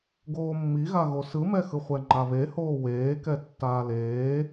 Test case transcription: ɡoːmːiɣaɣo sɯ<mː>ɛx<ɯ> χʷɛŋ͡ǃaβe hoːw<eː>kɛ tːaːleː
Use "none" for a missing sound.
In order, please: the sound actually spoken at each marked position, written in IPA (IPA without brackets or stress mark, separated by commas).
m, ɯ, eː